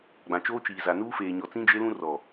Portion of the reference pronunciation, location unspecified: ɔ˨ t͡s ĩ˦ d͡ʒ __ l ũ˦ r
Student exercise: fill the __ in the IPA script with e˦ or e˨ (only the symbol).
e˦